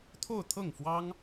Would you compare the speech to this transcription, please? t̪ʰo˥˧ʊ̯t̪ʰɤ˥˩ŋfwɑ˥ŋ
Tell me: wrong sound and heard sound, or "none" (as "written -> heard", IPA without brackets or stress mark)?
none